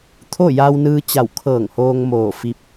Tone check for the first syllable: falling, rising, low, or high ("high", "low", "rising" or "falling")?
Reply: falling